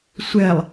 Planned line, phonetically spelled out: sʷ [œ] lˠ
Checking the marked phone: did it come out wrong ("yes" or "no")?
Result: yes